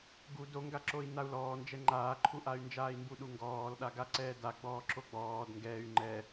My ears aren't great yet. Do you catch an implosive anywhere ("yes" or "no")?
yes